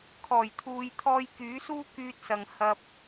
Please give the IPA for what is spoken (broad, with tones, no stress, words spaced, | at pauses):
kʰɔː˨˩jt̪ʰuː˨jt̪ʰɔː˧j kyː˨˥suː˥ kyː˧t̚sɐ˨ŋ hɐ˥p̚